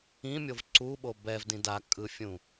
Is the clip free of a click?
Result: no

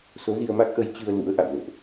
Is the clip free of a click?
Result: yes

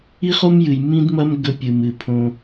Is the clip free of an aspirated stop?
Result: no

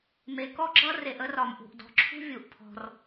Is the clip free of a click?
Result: no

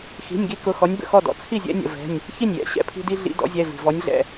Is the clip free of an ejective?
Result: yes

